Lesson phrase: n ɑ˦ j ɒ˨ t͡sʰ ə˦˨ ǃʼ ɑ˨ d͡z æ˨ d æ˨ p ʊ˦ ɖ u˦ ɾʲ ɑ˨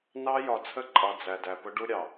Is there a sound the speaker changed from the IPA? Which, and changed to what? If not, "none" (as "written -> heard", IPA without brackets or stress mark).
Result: none